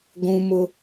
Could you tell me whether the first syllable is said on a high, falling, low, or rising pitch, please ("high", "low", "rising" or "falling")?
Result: high